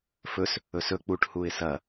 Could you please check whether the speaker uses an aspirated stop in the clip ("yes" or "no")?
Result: no